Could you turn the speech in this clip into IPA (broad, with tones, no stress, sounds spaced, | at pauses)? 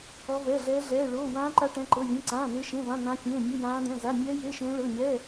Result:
ɔ˦˥ v ɛ˧˥˧ ɮ ɛː˦˥ ɮ ɛː˧˥˧ ɭ oː˧˥˧ w ãː˦˥ ǃ a˦˥ ʈ ɛ̃˧˥˧ ǃ ɤ˧˥˧ vʲ ẽ˧˥˧ ǀ ãː˧˥˧ n̪ e˦˥ ʃ ẽ˧˥˧ v ã˧˥˧ n̪ ã˦˥ fʲ ẽː˧˥˧ mʲ u˧˥˧ j ãː˦˥ d̪ ɛ̃˧˥˧ z a˧˥˧ mʲ ɛː˦˥ j e˧˥˧ ʃ ẽː˦˥ ɭ ɤ˧˥˧ ɲ ɛː˧˥˧